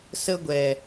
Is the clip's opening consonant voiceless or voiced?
voiceless